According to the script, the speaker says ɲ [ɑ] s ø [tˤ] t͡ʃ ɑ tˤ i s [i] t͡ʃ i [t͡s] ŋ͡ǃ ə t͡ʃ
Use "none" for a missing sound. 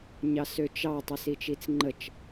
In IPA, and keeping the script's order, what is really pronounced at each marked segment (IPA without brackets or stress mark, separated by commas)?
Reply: ɑ, none, i, t͡s